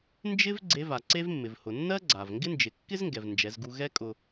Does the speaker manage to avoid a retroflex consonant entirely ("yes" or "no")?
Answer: yes